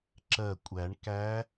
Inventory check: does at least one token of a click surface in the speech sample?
yes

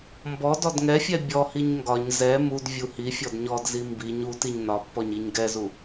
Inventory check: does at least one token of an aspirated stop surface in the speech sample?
no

